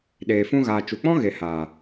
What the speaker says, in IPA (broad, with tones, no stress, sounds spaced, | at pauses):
ɗ eː˨ f ũ˧ ɣ aː˨ t͡ʃ u˨ k͡p ɔ̃˦ ɣ e˨ h a˨